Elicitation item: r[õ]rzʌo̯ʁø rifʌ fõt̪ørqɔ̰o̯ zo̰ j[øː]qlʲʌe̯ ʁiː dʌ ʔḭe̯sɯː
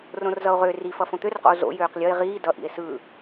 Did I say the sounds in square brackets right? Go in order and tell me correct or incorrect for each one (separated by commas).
correct, correct